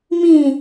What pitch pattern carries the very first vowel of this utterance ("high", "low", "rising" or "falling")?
falling